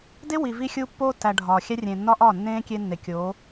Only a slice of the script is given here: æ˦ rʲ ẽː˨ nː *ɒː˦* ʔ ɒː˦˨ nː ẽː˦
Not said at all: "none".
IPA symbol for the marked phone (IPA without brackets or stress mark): ɒ˦